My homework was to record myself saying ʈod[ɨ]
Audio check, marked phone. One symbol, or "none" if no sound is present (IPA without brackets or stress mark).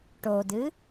ɨ